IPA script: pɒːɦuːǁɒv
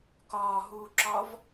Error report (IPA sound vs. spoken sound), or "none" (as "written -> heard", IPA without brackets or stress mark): p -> k